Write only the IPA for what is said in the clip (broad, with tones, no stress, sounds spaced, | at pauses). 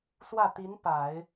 s w ä˥˩ t̪ i˧˥ n p a˨˩˦ ɪ̯